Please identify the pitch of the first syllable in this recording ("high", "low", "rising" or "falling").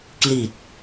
low